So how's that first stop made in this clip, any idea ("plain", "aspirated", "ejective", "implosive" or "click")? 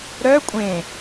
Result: ejective